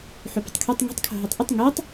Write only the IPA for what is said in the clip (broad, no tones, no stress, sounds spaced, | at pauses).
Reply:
ħ u p ə̤ tˤ kʰ ø tˤ ŋ e̤ tˤ kʰ o̤ ɦ e tˤ ʔ ʊ tˤ ŋ e tˤ